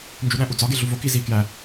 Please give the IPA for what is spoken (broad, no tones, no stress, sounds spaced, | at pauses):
n d͡ʒ u ɗ æ̃ ʔ u d͡z ɒ ɡ e ɮ u v o k i z i k j æ